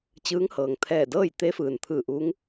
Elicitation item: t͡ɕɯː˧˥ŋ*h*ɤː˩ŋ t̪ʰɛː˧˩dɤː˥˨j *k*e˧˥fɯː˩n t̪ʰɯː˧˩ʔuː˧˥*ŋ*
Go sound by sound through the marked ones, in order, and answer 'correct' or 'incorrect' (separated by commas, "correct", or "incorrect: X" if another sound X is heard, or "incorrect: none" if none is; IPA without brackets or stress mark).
correct, incorrect: t̪, correct